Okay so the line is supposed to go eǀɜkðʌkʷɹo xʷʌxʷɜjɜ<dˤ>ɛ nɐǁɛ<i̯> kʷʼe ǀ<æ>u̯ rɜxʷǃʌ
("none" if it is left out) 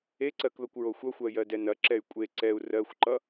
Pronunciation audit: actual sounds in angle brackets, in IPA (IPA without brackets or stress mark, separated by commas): d, y̯, ɛ